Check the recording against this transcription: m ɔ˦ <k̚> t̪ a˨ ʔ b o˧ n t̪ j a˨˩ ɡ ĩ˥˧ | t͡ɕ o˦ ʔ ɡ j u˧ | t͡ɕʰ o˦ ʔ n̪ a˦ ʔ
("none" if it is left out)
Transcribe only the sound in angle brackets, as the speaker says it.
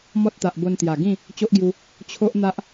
t̚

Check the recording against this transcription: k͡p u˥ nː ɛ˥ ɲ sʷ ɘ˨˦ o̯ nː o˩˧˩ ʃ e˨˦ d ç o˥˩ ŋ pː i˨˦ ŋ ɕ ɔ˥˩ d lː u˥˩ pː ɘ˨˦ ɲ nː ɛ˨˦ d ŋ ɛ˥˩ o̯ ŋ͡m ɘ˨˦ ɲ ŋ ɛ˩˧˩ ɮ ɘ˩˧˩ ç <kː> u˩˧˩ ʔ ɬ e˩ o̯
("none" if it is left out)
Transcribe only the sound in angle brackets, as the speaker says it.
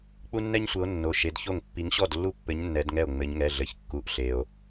kː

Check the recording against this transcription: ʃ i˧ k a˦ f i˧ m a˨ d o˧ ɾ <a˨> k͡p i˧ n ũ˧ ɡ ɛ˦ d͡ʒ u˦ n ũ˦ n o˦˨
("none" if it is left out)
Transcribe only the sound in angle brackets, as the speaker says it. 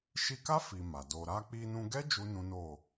a˧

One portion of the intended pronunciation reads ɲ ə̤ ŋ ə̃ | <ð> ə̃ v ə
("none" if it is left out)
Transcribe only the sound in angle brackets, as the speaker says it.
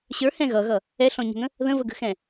ð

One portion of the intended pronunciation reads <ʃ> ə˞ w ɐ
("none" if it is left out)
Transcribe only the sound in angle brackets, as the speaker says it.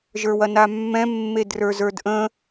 ʒ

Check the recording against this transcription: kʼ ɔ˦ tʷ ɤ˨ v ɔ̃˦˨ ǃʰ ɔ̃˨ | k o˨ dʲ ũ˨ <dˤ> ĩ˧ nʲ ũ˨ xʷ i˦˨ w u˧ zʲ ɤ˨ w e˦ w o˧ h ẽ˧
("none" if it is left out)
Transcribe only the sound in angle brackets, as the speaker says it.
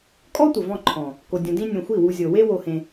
d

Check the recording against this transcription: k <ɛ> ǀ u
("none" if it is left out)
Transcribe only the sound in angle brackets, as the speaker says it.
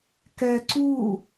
ɛ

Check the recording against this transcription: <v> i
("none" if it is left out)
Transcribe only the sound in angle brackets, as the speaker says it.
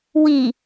w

